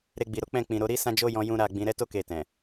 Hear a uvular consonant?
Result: no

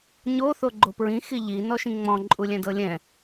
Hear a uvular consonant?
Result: no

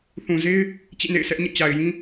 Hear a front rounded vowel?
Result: no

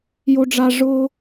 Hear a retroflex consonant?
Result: yes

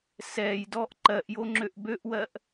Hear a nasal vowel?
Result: no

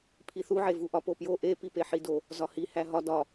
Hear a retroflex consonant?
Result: no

